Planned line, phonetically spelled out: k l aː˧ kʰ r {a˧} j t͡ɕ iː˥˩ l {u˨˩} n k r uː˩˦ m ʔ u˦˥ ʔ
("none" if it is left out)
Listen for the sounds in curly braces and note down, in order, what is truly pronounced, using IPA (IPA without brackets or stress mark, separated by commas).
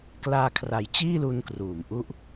a˨˩, u˧